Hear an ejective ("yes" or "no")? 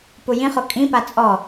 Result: yes